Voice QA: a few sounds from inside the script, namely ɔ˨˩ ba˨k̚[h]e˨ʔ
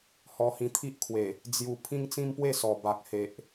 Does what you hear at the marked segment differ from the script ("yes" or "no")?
no